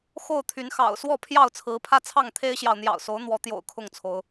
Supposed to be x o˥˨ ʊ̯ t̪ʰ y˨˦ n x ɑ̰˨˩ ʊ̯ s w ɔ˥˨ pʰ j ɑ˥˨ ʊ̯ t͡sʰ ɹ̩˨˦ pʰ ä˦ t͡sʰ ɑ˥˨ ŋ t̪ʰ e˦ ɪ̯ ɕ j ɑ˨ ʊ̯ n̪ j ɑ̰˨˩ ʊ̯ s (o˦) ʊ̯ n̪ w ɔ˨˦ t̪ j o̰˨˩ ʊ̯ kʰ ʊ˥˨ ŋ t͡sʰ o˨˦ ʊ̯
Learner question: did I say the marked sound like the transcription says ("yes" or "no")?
no